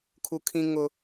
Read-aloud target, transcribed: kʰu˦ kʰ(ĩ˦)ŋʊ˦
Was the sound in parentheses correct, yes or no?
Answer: yes